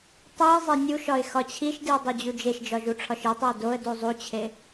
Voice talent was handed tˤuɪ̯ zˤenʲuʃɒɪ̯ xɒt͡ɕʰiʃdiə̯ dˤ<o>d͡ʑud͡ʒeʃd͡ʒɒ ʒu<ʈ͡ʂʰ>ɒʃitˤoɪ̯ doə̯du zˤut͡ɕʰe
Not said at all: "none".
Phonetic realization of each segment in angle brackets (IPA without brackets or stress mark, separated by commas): o, ʈ͡ʂʰ